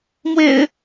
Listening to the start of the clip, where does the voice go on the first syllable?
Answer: low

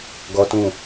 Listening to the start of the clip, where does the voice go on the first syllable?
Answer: high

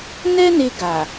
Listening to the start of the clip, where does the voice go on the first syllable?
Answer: high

